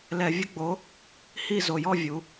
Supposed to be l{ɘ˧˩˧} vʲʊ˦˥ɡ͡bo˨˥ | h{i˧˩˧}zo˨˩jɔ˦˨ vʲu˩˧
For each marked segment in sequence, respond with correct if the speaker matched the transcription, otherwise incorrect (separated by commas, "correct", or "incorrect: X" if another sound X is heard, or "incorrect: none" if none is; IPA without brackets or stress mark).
incorrect: ɛ˧˩˧, incorrect: i˦˨